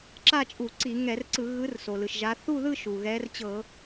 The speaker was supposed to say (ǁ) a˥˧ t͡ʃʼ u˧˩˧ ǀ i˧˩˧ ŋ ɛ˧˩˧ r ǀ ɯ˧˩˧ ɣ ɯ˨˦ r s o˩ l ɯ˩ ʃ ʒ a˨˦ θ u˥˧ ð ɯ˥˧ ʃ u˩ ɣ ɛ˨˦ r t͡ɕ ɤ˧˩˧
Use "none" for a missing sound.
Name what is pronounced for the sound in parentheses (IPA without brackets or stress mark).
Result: ǁ